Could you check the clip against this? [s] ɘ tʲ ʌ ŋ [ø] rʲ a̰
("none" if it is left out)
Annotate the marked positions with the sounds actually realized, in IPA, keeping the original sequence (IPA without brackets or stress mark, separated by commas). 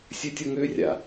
sʲ, ø